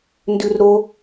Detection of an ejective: absent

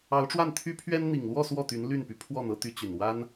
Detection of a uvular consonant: absent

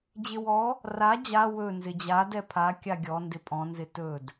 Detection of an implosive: absent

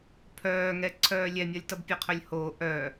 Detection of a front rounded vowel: present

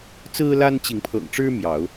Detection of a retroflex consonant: present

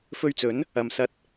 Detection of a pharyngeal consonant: absent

